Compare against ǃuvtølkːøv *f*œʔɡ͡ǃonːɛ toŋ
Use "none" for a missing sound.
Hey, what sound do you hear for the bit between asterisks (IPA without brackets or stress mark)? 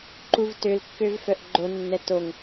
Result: f